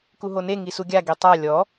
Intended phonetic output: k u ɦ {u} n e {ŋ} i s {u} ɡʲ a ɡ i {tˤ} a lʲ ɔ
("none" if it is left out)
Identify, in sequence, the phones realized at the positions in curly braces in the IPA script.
o, ŋ, u, tˤ

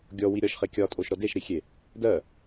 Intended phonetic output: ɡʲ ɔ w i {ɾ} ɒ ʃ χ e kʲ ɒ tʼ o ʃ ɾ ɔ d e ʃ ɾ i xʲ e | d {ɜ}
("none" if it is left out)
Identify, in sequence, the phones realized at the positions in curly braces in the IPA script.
ɾʲ, ɜ

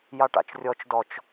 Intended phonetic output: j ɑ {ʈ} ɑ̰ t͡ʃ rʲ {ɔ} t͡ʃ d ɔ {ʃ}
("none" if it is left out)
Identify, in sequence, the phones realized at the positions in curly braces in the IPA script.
ʈ, ɔ, t͡ʃ

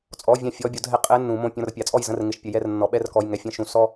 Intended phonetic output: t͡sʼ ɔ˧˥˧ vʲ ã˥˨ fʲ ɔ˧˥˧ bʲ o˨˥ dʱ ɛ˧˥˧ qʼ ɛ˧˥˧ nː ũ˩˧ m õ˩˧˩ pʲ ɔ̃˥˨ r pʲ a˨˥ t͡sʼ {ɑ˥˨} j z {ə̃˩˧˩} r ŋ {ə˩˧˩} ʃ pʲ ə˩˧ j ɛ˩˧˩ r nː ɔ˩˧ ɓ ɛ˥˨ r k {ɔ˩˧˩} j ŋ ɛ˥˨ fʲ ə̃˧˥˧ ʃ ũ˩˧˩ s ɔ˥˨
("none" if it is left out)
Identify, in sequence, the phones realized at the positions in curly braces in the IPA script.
ɔ˥˨, ə̃˥˨, ɪ˩˧˩, ɔ˩˧˩

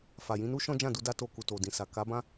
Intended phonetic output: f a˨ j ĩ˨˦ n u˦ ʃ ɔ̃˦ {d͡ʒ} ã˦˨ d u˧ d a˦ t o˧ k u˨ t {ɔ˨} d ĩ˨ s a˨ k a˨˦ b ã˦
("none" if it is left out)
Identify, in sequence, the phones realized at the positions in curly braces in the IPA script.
d͡ʒ, o˨

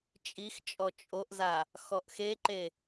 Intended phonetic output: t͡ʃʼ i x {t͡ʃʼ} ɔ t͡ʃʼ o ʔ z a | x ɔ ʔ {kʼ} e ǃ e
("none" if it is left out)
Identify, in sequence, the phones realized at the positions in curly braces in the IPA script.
t͡ʃʼ, x

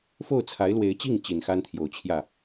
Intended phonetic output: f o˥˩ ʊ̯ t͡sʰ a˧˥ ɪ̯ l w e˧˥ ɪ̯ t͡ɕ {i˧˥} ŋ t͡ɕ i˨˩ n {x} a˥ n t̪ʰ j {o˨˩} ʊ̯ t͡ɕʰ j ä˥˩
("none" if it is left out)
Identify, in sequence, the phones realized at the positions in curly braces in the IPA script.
i˥˩, x, o˨˩

